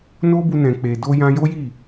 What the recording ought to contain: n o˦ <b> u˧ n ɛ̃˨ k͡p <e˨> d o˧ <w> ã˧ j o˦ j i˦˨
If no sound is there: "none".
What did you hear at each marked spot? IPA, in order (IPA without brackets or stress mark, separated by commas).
b, e˨, j